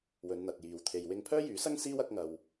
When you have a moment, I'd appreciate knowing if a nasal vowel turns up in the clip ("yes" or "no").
no